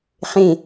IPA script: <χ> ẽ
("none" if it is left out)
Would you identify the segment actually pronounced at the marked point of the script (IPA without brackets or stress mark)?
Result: χ